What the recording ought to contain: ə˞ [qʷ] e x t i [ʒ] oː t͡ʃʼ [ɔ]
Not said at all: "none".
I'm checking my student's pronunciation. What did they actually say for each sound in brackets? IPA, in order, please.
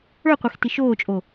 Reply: qʷ, ʃ, o

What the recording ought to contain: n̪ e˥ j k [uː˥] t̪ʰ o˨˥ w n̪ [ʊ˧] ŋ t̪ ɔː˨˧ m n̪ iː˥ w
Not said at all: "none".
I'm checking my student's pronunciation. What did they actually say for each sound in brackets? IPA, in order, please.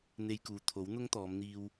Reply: uː˧, ʊ˥

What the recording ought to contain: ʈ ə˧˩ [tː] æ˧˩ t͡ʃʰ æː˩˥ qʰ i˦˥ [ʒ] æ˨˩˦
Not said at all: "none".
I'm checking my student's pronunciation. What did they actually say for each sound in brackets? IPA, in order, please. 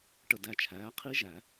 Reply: d, ʒ

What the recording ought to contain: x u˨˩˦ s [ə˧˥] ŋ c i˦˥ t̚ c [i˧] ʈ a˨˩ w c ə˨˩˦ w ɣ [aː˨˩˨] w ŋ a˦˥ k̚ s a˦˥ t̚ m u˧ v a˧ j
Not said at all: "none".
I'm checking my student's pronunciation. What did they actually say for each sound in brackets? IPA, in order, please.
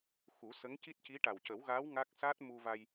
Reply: ə˧˥, i˧˥, aː˧˥

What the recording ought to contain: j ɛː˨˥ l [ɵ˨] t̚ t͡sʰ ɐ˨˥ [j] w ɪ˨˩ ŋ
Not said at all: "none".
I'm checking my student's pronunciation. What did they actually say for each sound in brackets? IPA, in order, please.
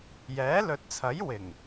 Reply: ɵ˨, j

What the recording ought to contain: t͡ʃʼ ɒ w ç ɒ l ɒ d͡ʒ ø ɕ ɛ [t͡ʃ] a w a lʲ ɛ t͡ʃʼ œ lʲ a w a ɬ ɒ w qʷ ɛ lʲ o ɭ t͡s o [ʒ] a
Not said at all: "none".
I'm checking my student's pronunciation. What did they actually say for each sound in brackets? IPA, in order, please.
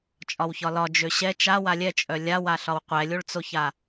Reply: t͡ʃ, ç

